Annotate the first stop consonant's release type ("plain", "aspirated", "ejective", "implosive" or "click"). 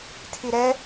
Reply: aspirated